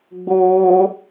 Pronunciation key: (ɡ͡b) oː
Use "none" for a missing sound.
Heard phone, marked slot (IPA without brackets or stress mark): ɡ͡b